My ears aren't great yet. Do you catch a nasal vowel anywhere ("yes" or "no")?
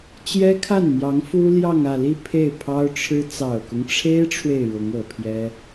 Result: no